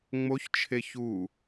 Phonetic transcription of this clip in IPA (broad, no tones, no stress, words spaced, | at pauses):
ŋ͡moçt͡ʃʰe çu